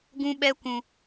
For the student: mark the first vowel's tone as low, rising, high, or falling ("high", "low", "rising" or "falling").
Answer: high